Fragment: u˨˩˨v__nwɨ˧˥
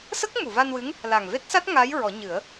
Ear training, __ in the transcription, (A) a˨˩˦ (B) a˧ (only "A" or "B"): B